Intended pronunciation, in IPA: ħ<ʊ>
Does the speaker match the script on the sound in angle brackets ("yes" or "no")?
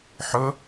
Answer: yes